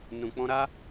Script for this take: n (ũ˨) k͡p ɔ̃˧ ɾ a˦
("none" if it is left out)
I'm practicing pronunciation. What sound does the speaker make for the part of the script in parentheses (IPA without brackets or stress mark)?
ũ˨